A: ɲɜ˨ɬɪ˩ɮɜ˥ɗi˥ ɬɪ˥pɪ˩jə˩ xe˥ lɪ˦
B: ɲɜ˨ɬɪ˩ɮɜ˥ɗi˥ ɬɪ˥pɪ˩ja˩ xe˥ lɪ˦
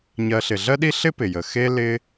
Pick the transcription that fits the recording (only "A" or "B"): A